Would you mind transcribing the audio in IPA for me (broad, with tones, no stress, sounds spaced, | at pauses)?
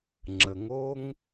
ŋ͡ǁ ə˨ ŋ o˦ ŋ